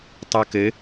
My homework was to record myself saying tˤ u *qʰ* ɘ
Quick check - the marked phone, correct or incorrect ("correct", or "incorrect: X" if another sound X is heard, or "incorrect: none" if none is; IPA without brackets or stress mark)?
incorrect: k